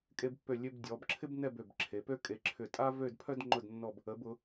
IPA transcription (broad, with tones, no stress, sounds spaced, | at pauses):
kʼ e˧ b pː ø˧˩ lʲ ø˧ b dʲ ɔ˩˧ b ǁʰ ɪ˥ b n ɛ˥˧ b ø˧˩ b ǁʰ e˩˧ p ø˥ kʼ e˧ ǁʰ ʏ˧˩ tʼ a˥ v ø˥˧ d pʰ œ˥ d ŋ͡ǃ ʊ˥˧ d nː ɔ˥˧ b | ə˩˧ b ʊ˩˧